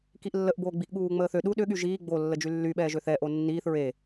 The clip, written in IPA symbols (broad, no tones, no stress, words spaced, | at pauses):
kiʔlːəʔboː ɡ͡biʔɠuːŋ͡məːθø ɗu ɗʏɠy ʒiː ɡ͡bo lːəd͡ʒylːyɓɛː ʒøθɛʔo nːiːθ ɹe